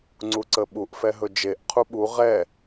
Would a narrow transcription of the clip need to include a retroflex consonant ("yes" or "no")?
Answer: no